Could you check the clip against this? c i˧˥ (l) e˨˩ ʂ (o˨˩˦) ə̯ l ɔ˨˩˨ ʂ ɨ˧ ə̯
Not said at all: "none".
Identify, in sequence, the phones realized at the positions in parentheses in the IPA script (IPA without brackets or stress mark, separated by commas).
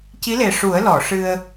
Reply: l, u˨˩˦